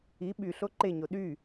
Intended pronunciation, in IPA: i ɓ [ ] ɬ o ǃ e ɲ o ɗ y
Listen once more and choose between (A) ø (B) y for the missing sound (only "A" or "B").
B